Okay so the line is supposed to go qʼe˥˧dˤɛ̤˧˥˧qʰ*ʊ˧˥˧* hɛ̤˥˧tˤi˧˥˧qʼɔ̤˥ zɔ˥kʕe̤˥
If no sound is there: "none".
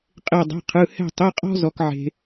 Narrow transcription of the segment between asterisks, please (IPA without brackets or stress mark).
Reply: ɯ˧˥˧